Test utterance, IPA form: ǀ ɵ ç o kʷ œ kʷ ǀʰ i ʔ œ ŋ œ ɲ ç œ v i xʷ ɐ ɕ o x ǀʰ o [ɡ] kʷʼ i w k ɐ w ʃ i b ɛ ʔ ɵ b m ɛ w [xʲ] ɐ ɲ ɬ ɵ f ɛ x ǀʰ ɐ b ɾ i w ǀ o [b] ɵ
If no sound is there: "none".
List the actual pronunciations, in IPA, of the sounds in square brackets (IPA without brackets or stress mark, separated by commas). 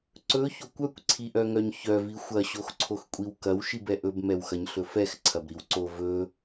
x, x, v